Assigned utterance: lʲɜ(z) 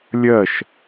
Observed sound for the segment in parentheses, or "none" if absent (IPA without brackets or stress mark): ʃ